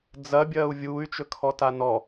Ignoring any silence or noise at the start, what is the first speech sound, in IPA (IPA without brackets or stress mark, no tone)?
d͡z